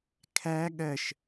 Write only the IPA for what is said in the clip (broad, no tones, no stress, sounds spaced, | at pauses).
kʰ æ ɠ ɜ ʃ